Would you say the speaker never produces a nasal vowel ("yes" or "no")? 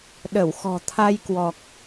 yes